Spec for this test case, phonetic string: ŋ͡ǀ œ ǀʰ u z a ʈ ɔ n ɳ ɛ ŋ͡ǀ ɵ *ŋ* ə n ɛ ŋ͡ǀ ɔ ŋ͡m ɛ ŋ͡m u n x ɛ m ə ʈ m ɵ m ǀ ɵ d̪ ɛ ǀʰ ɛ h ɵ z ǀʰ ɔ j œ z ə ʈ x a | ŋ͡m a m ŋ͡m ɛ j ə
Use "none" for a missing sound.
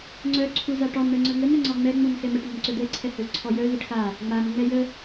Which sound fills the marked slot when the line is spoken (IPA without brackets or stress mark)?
ŋ